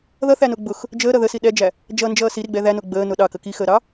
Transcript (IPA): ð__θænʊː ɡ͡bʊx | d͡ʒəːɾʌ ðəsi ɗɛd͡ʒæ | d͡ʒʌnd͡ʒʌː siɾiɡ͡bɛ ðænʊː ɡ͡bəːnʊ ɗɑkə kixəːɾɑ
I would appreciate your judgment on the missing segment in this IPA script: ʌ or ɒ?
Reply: ʌ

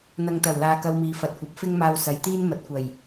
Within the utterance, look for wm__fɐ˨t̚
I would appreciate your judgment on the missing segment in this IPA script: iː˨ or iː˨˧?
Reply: iː˨˧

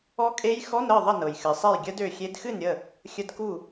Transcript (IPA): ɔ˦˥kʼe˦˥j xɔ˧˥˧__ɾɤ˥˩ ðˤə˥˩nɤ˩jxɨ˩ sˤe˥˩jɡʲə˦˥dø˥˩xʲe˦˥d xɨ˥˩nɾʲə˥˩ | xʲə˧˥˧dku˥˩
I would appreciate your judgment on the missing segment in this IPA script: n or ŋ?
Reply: n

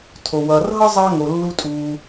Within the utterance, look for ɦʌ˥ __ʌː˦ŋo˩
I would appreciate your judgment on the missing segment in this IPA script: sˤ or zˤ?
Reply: zˤ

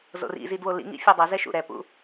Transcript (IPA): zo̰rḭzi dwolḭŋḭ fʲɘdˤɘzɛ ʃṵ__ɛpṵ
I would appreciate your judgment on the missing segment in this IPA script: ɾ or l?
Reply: ɾ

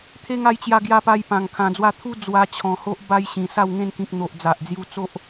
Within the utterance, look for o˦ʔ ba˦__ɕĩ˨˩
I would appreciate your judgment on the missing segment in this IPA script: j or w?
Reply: j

